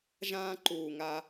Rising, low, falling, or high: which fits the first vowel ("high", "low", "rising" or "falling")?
high